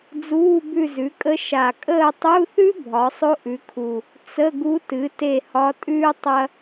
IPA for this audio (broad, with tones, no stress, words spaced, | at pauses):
d͡zuː˧˥˧bʉ˦˨zʉ˩˥kʼə˧˥ ʃa˨˩kʼəː˦˨tˤu˧˥˧θʉ˥ bʱɒ˩˥sˤo˥ʔʉ˩˥kʰu˨˩ | t͡sə˧˥˧ɡu˧˥tɨ˩˥ te˦˨hɒ˧˥tʼʉː˥ tˤɐ˥